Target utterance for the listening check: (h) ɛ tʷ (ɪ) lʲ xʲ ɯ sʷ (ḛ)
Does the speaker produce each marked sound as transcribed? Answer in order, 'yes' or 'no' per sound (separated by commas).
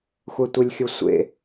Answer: no, yes, yes